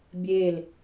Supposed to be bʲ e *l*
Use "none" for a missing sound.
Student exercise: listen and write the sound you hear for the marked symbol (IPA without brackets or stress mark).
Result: l